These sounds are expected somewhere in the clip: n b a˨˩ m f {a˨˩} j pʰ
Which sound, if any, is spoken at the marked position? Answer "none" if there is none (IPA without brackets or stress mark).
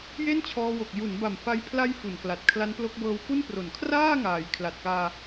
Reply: a˧